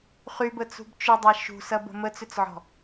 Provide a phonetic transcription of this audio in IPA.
χ y b ə t͡s ṳ b t͡ʃ ʏ dˤ ɐ ʃ ṳ s ɐ b ə̤ m ə t͡s ʏ t͡s ʕ ɔ̤

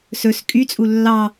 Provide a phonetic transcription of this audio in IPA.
s ɵ s kʼ y t͡sʼ u lː ɑ

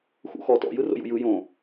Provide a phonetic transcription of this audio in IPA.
x ṵ x ɔ t ɔ̰ j ɯ r o̰ j ṵ j ɯ j õ

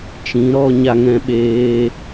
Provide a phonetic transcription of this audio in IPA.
t͡ʃ ĩ˨˦ ɾ ɔ˧ ɲ a˧ ŋ ɛ̃˧ ɓ eː˧

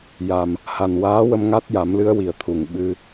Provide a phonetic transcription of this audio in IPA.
j a˨˩ m | h a˨˩ n w aː˧˥ w ə˧ m ŋ a˦˥ t̚ j a˨˩˦ m l ɨ˧˥ ə̯ w i˨˩ ə̯ t̪ʰ u˨˩˨ ŋ ɓ ɨ˧

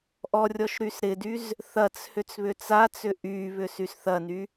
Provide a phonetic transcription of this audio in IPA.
ʔ ɔ rʲ ɔ ʃ ɾ y s ɾ ɪ d y z | θ ɐ t͡s h ʏ t͡s β ʏ t͡s a t͡s ʏ ʔ y β ʏ s y s θ ɐ n y

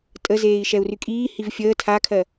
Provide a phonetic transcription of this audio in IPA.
tʼ ə z eː i̯ ʃ ɛ u̯ r y kʼ iː h i v fʲ əː tʰ a kʰ ɜ

